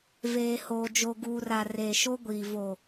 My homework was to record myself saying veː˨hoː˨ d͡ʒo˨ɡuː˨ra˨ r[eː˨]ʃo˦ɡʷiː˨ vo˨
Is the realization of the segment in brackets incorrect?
no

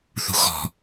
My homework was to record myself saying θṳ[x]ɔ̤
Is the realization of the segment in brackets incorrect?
no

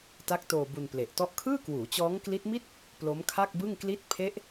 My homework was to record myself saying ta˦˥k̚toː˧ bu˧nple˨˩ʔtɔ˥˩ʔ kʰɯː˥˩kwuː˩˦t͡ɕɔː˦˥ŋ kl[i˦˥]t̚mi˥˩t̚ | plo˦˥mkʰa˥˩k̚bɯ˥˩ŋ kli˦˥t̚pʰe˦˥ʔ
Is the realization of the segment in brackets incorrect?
no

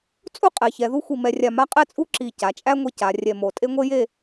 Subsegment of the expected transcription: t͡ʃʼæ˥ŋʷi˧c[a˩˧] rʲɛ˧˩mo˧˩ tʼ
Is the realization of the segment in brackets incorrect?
no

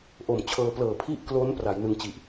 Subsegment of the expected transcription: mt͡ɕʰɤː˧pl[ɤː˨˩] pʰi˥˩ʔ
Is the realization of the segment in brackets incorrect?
no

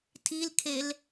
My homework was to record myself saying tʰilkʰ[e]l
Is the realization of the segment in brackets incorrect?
no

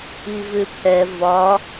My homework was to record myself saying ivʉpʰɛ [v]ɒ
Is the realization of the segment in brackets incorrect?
no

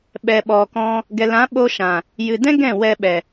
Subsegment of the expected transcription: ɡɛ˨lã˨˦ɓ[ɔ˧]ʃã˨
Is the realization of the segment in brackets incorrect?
yes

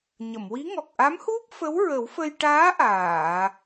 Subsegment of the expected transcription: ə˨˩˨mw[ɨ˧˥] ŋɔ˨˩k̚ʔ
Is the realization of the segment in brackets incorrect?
yes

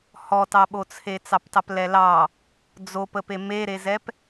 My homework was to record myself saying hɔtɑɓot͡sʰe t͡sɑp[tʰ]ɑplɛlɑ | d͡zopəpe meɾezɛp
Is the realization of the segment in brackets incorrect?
yes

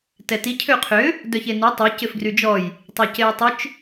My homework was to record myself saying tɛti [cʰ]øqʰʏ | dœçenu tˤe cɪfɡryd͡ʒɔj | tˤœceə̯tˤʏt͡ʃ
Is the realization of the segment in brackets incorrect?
no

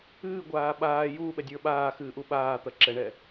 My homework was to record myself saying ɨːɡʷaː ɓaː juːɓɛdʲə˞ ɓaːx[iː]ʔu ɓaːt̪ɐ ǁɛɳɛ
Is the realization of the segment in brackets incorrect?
yes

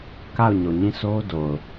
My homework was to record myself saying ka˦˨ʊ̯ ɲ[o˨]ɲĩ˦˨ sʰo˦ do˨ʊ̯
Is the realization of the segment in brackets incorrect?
no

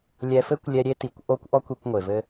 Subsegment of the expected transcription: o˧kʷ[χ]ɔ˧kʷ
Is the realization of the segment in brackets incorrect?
yes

